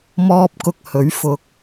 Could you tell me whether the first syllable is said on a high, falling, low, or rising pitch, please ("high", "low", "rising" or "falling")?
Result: high